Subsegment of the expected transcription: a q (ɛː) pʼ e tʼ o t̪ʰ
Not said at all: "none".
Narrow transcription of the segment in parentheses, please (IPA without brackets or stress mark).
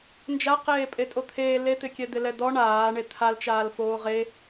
eː